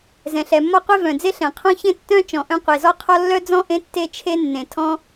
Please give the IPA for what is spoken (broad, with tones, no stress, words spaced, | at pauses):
zɛ̃˩ɬɛ˩mːɔ˥qʷe˥ vœ̃˩d͡ze˥ɬɛ̃˩qʰɔ̃˥ çẽ˥tːœ̃˥ t͡ʃɔ̃˩ʔœ̃˥ qʷe˩zɔ˥qʰɔ˥ lːœ˥d͡zɔ̃˥ ʔẽ˥ tːe˥t͡ʃʰe˥nːẽ˩ tʰɔ̃˥